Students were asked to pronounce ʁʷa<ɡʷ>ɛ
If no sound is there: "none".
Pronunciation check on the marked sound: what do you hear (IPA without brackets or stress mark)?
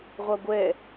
ɡʷ